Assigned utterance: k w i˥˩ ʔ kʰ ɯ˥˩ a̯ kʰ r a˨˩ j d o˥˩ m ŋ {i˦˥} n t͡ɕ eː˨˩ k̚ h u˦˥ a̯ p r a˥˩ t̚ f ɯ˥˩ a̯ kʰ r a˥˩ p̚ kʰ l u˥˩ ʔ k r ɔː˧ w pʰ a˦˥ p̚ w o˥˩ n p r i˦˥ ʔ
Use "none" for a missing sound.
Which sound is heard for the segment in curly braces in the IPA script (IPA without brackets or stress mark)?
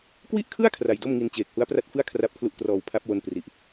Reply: i˧